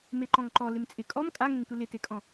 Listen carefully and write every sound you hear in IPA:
m e ǃ ɔ̃ ŋ ǃ ɔ l ɪ m t͡sʼ ɪ kʼ ɔ m kʼ a ŋ ẽ ŋ tʷ ɪ l ɪ t e kʼ ɔ̃

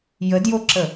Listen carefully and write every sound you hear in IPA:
j ə d j o ǁ ə

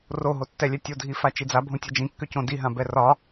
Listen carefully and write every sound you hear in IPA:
r o ɦ o tː ɛ lʲ ɛ tʲ o dʱ i f a t͡ʃ i d͡z a bʱ õ tʲ ɛ d͡ʒ ĩ kː ʏ c õ d i ɦ ã b ɛ r ɒ

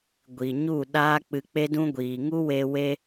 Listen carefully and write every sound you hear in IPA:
ɡʷ i˨ ɲ u˦˨ ɗ aː˦ k͡p ɨ˧ k͡p e˦ d ũ˦ ɡʷ iː˨ ŋ u˦ w e˧ w e˧

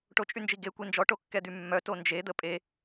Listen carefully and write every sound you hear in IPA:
ʈ o t͡ʃʼ y n d͡ʒ i ɡ e kʷ i n d͡ʒ ɔ ʈ o kː ɛ d̪ y mː œ t o n d͡ʒ e d̪ ə pʼ e

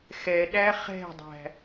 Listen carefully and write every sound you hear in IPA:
x ɛ ɗ æ χ ɛ̤ dˤ æ̤

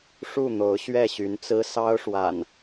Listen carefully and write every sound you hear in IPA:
ʂ u˥˨ n̪ o˨˦ ʊ̯ ɕ ɥ ɛ˥˨ ɕ y˨˦ n t͡s ɹ̩˦ s ɑ˦ ʊ̯ ʂ w a̰˨˩ n

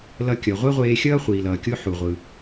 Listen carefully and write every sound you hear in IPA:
l ʌ˧ kʲ ʌ˩ ʁʷ ɛ˥ ʁʷ eː˧ xʲ ʌː˥ χʷ iː˩ l ʌː˩ kʲ o˥ ħ u˩ ʁʷ ɯ˩

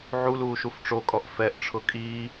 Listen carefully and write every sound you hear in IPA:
ʕ u l uː ʃ u f ʈ͡ʂ o kʼ ɔ ʔ f ɛ ʔ ʈ͡ʂʰ ʊ kʼ iː

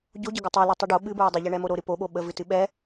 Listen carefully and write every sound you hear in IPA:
ɟ o ɟ ə ɡ ɨ tˤ i l i tˤ i ɖ o ɓ ɨ b ɹ o dˤ ɨ ʎ ɛ ɳ ɛ m o ɾ o ɾ ɨ p o ɓ o ɓ ə v ɨ t ɨ ɓ ɛ

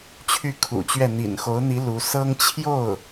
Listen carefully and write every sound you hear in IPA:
t͡ɕʰ y˥˩ kʰ ṵ˨˩ t͡ɕ ɥ ɛ˥˩ n̪ ḭ˨˩ n x o˧˥ ʊ̯ n̪ i˧˥ l u˧˥ s ɤ˥ ŋ t͡ɕʰ j o˥˩ ʊ̯

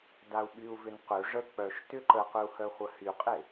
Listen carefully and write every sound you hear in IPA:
d a u̯ ɓ y u̯ v ʏ n q ø ʐ ə k͡p œ ʃ t ʏ ǃ ə q ʏ u̯ h œ χʷ ə h y qʼ e

